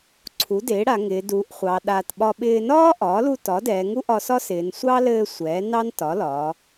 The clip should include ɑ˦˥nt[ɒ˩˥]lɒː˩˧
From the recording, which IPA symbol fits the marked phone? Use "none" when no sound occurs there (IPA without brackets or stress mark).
ɒ˩˥